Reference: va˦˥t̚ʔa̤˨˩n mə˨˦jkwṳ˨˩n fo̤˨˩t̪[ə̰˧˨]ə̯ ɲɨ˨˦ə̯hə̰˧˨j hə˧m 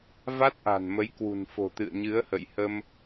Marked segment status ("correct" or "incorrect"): incorrect